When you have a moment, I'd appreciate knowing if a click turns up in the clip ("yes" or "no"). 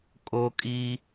no